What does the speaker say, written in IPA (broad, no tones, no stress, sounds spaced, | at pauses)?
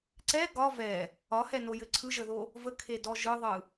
ǀ ɛ ɡ ɒ v ɛ | ɒ h ɛ n o j ɘ ǀʰ ɯ ʒ ə ð o | v ə kʰ e d ɔ ʒ ɯ ðˤ ɯ